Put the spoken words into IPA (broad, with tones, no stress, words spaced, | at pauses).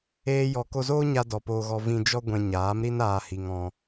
eː˦jɔ˧ ko˧zoː˦ɲa˧ dɔ˨poː˧ɣɔ˧ vĩ˧d͡ʒɔ˦ ɡʷɛ̃˧ɲaː˨˦mɾi˦naː˧ hi˧ŋɔ̃˧